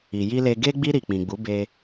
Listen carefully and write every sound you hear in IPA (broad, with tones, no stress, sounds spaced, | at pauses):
i˨ j i˧ l e˧ ɡ e˧ ɡ͡b i˧ ɾ i˨ k͡p ĩ˨ ɡ͡b u˨˦ b e˧